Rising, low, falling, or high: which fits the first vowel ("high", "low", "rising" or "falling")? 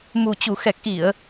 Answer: low